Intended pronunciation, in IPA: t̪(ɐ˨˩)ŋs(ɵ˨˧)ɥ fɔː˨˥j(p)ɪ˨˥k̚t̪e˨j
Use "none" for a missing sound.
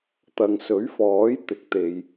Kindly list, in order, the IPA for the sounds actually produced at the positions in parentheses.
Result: ɐ˨, ɵ˨˥, t̪

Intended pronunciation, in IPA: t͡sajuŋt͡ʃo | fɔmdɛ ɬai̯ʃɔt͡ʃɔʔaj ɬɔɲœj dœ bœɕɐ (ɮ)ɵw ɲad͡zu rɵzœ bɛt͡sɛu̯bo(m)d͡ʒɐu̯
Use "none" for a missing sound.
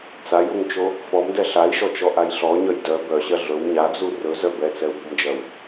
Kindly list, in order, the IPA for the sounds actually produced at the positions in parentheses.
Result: ɮ, m

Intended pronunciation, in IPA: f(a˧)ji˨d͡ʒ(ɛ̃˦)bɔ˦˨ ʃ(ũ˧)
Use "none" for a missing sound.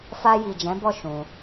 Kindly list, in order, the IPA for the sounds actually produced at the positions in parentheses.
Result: a˧, ɛ̃˨˦, ũ˧

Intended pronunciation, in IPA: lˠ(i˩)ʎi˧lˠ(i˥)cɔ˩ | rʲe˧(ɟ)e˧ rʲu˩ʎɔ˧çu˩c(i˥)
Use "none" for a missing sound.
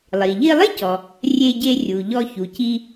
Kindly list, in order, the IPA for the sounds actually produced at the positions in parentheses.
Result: i˩, i˥, ɟ, i˧

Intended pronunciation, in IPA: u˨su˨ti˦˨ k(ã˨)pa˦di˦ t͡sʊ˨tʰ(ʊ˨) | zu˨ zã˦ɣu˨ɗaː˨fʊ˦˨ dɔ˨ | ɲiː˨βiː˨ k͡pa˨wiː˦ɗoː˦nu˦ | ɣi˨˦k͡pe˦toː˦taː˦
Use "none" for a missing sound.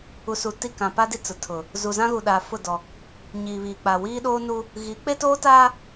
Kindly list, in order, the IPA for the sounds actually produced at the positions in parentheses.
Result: ã˨, ʊ˨

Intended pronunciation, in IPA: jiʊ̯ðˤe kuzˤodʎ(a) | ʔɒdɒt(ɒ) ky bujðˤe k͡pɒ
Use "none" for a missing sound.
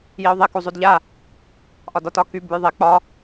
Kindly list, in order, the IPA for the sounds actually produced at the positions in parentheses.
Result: a, ɒ

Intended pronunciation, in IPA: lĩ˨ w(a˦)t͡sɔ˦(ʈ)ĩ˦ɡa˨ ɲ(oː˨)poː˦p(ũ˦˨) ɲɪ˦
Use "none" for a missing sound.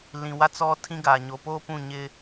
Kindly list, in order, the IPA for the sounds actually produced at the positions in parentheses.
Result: a˦, tʰ, o˨, ũ˦˨

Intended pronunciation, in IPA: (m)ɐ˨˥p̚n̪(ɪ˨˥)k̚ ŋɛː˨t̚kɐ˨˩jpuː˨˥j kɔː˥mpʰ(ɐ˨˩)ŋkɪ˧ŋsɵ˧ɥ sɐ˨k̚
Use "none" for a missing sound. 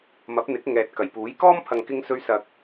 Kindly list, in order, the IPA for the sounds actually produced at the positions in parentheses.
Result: m, ɪ˨˥, ɐ˨

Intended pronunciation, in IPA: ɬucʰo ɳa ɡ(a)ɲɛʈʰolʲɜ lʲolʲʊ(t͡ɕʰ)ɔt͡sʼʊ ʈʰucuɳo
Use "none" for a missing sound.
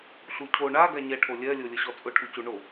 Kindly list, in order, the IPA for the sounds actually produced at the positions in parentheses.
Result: a, ɕ

